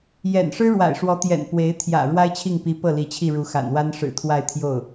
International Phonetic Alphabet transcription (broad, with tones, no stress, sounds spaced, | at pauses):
j ɛ̰˨˩ n ʂ ɻ̩˥ ɻ w a̰˨˩ ɪ̯ ʂ w ɔ˧˥ t̪ j ɛ̰˨˩ n p w e˧˥ ɪ̯ t̪ʰ j ä̰˨˩ ɻ w a˥ ɪ̯ t͡ɕʰ i˥˩ ŋ p i˧˥ p ɤ˥˩ l i˧˥ t͡ɕʰ i˥˩ ɻ u˧˥ x a̰˨˩ n w a˥ n ʂ ɻ̩˨˩ t̪ʰ w a˥˧ ɪ̯ t̪ʰ j o˥˩ ʊ̯